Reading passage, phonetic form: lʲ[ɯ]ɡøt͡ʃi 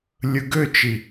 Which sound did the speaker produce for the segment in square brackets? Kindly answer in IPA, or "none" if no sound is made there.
ɯ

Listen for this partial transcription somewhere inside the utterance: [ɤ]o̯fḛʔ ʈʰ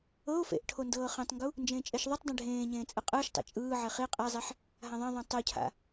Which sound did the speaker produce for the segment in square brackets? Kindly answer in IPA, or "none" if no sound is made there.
ɤ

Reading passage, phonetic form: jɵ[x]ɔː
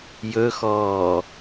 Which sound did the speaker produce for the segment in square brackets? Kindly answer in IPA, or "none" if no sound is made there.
x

